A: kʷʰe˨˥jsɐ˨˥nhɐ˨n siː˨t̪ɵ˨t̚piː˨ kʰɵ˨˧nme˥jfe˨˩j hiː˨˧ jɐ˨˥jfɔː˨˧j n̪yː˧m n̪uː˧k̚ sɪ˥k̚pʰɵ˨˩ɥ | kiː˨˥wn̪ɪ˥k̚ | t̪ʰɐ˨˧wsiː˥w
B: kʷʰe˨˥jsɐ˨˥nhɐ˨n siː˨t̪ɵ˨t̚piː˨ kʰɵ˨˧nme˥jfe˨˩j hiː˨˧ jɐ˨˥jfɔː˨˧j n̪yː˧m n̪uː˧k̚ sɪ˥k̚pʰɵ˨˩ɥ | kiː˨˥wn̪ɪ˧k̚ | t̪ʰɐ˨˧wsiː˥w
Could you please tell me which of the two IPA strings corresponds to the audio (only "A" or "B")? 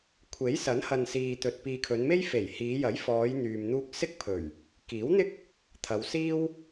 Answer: A